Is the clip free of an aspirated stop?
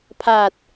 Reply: no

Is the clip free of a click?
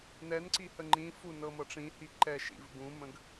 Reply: no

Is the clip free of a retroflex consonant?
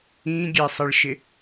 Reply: no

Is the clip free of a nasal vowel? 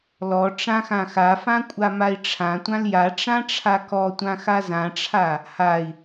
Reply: no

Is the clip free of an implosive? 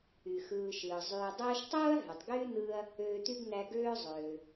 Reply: yes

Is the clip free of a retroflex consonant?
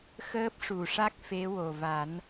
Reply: no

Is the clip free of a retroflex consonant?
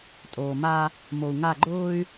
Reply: yes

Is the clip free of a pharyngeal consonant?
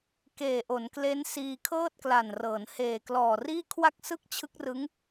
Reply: yes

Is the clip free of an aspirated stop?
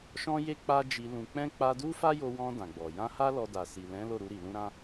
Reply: yes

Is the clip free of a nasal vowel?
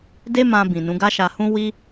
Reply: no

